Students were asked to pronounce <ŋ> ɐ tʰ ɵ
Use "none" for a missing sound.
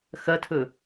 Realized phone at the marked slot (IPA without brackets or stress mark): x